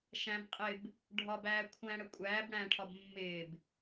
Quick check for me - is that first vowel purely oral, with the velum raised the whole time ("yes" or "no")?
no